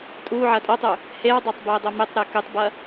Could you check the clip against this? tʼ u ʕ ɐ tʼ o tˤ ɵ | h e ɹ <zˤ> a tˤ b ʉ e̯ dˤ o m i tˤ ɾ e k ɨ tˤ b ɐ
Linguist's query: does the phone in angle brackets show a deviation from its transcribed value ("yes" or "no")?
yes